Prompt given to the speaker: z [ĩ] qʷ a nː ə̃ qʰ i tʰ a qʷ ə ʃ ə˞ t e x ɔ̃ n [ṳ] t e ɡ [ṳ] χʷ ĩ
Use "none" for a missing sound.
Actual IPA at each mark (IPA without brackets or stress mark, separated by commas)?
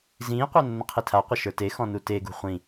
ĩː, u, ṳ